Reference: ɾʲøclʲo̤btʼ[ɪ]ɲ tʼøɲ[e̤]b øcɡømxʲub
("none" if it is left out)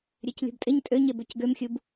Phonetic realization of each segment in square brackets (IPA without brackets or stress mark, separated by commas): ɪ, e